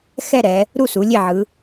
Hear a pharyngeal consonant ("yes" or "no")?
yes